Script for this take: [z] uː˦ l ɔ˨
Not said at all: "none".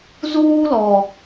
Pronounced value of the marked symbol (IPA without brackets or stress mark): z